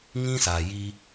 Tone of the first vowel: high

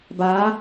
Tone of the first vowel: rising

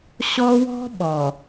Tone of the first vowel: high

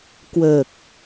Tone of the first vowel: low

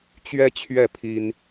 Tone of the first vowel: high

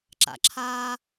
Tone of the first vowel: low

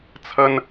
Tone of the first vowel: high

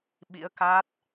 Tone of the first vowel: rising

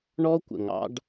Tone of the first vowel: high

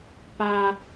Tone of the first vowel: high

